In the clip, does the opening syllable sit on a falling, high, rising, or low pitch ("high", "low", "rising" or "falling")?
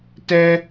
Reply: high